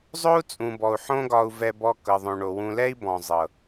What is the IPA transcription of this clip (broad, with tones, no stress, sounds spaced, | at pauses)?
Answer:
zˤ o˦ u̯ t͡sʼ ũ˨ b ɔ˨ u̯ ħ õ˦ ɡ ɒ˧ u̯ v ɛ˧ b ɔ˧ k ɤ˨ ðˤ õ˨ ɳ o˨ w ũ˧ l ɛ˦ i̯ b ɔ̃˨ zˤ ɤ˨